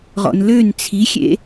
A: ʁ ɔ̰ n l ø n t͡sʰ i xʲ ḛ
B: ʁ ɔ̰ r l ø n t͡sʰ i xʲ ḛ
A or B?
A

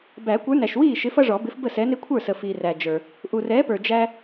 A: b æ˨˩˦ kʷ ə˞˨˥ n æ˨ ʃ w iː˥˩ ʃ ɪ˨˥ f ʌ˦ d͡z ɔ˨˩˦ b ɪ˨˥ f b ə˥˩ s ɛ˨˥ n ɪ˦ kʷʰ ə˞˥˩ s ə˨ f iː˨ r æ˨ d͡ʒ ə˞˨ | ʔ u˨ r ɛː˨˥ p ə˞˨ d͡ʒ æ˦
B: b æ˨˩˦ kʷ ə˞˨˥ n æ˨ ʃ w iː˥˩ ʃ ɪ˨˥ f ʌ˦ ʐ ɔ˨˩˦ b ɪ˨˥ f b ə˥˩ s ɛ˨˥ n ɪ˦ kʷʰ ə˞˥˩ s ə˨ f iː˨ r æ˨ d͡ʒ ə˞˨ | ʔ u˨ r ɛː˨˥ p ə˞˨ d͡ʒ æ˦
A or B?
B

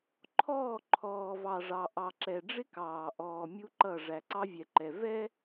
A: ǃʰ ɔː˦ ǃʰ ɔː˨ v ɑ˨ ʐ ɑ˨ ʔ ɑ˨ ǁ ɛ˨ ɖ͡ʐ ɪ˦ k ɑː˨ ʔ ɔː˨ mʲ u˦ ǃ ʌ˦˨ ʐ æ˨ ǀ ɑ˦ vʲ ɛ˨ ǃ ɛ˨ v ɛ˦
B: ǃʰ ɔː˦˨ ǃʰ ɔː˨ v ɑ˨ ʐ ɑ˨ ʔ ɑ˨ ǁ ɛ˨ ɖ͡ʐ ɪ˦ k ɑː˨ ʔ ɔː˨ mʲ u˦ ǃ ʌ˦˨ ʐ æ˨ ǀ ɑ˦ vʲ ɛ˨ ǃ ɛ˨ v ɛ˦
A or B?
B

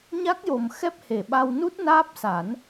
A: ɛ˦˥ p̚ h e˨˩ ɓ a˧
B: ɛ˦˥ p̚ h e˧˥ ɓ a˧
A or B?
A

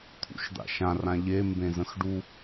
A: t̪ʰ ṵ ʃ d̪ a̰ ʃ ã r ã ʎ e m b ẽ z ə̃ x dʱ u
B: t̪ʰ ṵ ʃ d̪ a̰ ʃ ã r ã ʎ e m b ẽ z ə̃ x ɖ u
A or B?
B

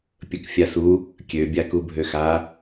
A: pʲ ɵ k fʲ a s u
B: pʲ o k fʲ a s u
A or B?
A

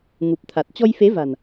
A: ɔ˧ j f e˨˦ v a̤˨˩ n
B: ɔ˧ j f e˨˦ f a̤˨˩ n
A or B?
A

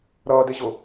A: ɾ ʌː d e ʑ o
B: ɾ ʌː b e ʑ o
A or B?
A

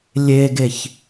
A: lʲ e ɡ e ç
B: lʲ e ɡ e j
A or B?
A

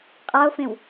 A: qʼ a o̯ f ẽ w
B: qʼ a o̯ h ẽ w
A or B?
A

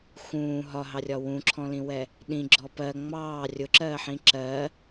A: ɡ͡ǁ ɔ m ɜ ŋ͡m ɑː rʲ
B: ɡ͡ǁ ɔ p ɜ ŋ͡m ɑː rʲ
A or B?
B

